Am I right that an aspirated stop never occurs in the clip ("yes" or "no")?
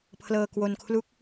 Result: no